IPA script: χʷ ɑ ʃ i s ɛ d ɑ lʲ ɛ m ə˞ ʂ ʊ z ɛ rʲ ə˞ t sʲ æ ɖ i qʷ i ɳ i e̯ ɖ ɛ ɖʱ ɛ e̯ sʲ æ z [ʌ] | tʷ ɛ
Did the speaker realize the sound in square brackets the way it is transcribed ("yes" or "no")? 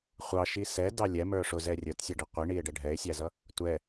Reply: yes